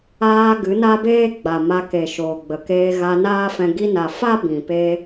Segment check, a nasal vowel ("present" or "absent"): present